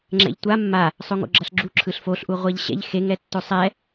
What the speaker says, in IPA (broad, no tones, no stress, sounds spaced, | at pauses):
ŋ͡ǁ ɛ̰ ʎ tʷ a mː a | sˤ o ŋ o̰ ɡ͡ǁ ʌ ɬ ɡ͡ǁ u ǁʰ ɯ ɬ f o ɬ ʔ u ʁʷ a ʎ ɕ ɛ̰ ʎ x e ŋ ɛ tː o sˤ ɛ